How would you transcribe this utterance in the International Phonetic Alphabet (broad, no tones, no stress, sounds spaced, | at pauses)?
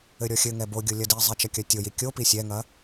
ɘ ɾʲ ɔ xʲ ɘ ŋ ɛ b o ɡʲ o lʲ ɐ d i zˤ ɛ t͡ʃ ɐ kʲ ɐ tʲ o j i kʲ o p i sʲ ɛ ŋ ɐ